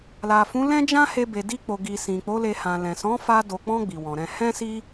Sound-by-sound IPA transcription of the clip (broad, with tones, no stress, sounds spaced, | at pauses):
l a˨ f ũ˨˦ l ɛ̃˦ d͡ʒ ã˦ h e˧ b e˨ d i˧ k͡p o˨ ɡ i˨ s ĩ˨ k͡p o˨˦ l e˧ h ã˨ l ɛ̃˨ s ɔ̃˨˦ f a˧ d o˨ k͡p ɔ̃˧ ɡ͡b i˨ w ɔ̃˨ ɾ ɛ̃˧ h ɛ̃˦ s i˦